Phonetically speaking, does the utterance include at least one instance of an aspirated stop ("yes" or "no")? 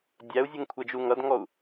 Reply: yes